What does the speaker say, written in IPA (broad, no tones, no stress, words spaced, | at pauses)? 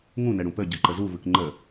ŋũnɛɽũ pəɟɯǃə zuvɯk ŋ͡ǃə